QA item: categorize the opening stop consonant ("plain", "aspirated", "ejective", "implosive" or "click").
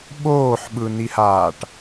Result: implosive